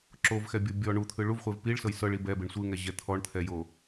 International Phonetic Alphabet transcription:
ǁ o v x ɛ bʲ o bʲ ɔ ɳ u t̪ʰ ɯ ɭ u v χʷ e v p i ɭ s ɤ j s ɤ ɭ i b ɛ b e ɳ sʷ ɯ ŋ ɛ ʑ ɛ t̪ʰ ɔ ɳ t̪ʰ ɛ j o

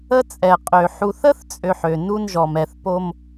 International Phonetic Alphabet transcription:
ə˦ t͡sʼ ɛ˨ qʼ ø˨ ħ u˨ θ ə˦ θ t͡sʼ ø˨ ħ ø˨ n u˦ n ʒ ɔ˨ m ɛ˨ θ p o˦ m

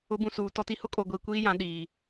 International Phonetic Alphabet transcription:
ʊ˨˦ b ũ˨ s uː˨ t ɔ˨ t i˨ h ʊ˦ kʼ o˨ ɡʷ iː˨ kʷ iː˦ j ã˨˦ ɗ iː˨

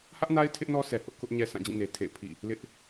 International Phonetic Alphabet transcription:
h ä˦ ʔ n a˦ ɪ̯ tʰ ɪ˦ ʔ n ɔ˦ sʰ ɛ˨ h ʊ˦ ʔ k ʊ˦ ʔ ɲ ɛ˦ sʰ ã˦˨ d͡ʑ ĩ˦˨ n e˨ tʰ ḛ˦˨ ɪ̯ pʰ ḭ˦˨ | l ɪ˦ ʔ

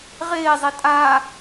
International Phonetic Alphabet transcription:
ʁ eː zˤ i tʼ aː

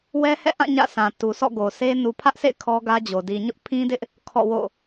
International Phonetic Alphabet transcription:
w ɛ˦ h ɛ̰˦˨ ʔ ã˦˨ ɲ ä̰˦˨ sʰ ã˨ t u˨ s ɔ̰˦˨ ɡ o˨ sʰ e˦ n u˨ pʰ ä˦ ʔ sʰ ḛ˦˨ ɪ̯ kʰ ɔ˦ ɡ ä˦ d͡ʑ o˨ d i˨ ɲ ʊ˦ ʔ pʰ ĩ˦ d ɪ˦ ʔ | kʰ ɔ̰˦˨ w o̰˦˨

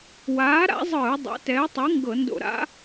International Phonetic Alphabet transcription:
w aː˨˥ ɾ a̰˨˥ zˤ ɯː˧˩˧ dˤ o̰˨˥ t ɛː˨˥ tˤ ɯ˨˥ ŋ ɡ ɤ˧˩˧ n d o̰˧˩˧ ɾ a̰˨˥

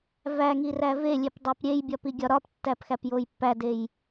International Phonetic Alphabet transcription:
v æ ŋ i r æ v e lʲ e p dˤ æ p ɾʲ e j bʲ ɒ p i ɡʲ ɒ ɾ ɒ p tː æ p x æ p j o j pː æ d e j

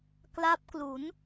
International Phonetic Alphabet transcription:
k l a˦˥ p̚ k l u˩˦ n

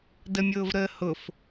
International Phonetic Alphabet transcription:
d ə mʲ ʊː v ɾ əː h ʊ f

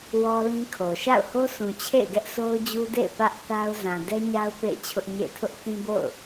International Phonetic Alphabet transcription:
w ɔ˦ l ĩ˦ kʰ o˨ ʃ a̰˦˨ ʊ̯ h o˦ s ũ˨ t͡ɕʰ ḛ˦˨ ɪ̯ ɡ ɛ˦ ʔ s o˦ ʊ̯ d͡ʑ u˦ d ḛ˦˨ ɪ̯ p ä˦ ʔ θ a˦ ʊ̯ z ã˨ d ɛ˦ ɲ a˦ ʊ̯ p ḛ˦˨ ɪ̯ t͡ɕʰ ʊ˦ ʔ ɲ ḛ˦˨ ɪ̯ tʰ ʊ˦ ʔ θ ĩ˦ b o̰˦˨ ʊ̯

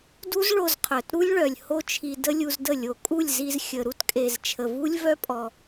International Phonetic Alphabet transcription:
d u˦ z ɭ o˧ z qʰ œ˨ t ɾ u˦ lʲ ɭ œ˨ lʲ h o˦ t͡ʃʰ i˧ d ə˦ lʲ u˧ z d ə˦˨ lʲ o˨ kʼ u˦˨ lʲ z i˧ z xʲ ə˨ ɾ u˦ t kʼ e˨ z t͡ʃʰ ə˨ v u˦ lʲ v œ˦ pʼ ɔ˧

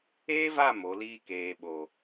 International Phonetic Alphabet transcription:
eː˦ v a˦˨ m o˨˦ l iː˦ k eː˨ ɓ o˨

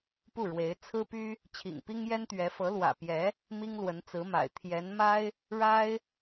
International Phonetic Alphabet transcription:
p u˥˩ ɻ w e˧˥ ɪ̯ t͡sʰ ɹ̩˥ p y˥ | t͡ɕʰ ḭ˨˩ ŋ p i˥ ŋ j ɛ˥ n t̪ ɥ ɛ˧˥ f ɤ˧˥ l w ä̰˨˩ p j ɛ˧˥ | m i˥ ŋ l w ə˧˥ n t͡s ɹ̩˧˥ m a̰˨˩ ɪ̯ t̪ʰ j ɛ˧˥ n m a˥ ɪ̯ | ɻ a˥ ɪ̯

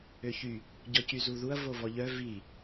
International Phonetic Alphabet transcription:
ø ç y | ɟ ɔ c y z u ð u ɐ̯ v o v ɔ ʎ œ v i

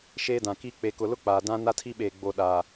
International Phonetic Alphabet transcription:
ʃ eː˦ d ã˨ k i˦ k͡p e˨ k ʊ˨ l ʊ˦ k͡p aː˨ d ã˦ n a˦ tʰ i˦ ɓ eː˨ ɡ͡b o˨ ɗ aː˨

